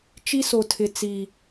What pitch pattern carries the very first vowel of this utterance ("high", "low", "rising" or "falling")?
high